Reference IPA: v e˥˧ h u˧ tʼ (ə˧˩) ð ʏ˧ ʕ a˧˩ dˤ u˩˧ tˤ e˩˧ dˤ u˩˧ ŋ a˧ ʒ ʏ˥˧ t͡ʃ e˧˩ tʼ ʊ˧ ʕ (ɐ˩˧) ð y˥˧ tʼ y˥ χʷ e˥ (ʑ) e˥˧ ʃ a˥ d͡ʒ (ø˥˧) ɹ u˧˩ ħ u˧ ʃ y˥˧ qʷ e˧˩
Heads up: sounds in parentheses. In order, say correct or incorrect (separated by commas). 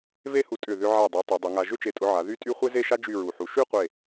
incorrect, incorrect, incorrect, incorrect